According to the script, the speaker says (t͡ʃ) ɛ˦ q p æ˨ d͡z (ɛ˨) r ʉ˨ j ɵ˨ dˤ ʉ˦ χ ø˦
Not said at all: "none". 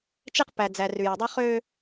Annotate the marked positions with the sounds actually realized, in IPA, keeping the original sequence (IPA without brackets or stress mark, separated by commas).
t͡ʃ, æ˨